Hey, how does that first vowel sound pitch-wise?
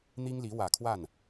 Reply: high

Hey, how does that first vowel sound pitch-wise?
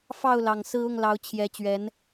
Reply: falling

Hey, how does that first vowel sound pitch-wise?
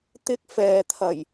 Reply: high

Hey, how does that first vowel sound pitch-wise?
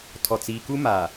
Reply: low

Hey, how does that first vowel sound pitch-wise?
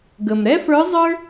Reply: low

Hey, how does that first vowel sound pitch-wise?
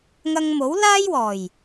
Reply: high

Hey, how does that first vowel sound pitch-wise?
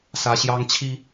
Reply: high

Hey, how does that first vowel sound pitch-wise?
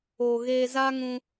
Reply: low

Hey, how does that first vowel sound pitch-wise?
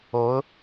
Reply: rising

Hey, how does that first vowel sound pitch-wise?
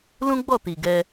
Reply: high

